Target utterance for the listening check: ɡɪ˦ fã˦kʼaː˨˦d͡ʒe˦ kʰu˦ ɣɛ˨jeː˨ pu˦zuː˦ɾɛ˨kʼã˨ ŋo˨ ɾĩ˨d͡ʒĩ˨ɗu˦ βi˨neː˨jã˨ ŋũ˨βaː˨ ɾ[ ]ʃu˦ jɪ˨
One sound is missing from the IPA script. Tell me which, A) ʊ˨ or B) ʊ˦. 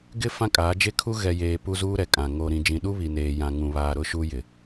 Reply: B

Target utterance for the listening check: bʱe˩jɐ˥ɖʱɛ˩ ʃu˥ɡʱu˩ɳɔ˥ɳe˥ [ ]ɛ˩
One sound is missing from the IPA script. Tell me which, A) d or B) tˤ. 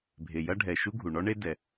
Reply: A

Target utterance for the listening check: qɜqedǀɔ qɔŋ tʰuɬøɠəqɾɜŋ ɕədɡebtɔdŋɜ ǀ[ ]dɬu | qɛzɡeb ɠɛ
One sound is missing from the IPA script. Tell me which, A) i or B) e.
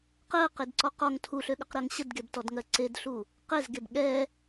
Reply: B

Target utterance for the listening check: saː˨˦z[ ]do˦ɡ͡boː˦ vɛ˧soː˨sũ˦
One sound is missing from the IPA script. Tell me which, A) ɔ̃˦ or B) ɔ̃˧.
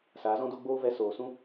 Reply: A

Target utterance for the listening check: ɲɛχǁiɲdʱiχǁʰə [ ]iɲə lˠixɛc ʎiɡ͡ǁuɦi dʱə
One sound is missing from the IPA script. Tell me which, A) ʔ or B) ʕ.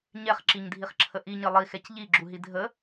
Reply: A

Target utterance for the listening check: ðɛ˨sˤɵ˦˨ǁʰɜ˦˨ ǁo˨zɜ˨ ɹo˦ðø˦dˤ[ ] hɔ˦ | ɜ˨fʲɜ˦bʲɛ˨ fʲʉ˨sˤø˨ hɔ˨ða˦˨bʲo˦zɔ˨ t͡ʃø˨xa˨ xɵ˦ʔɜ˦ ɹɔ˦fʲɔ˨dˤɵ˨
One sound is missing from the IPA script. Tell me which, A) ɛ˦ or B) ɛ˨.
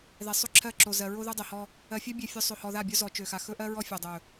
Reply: B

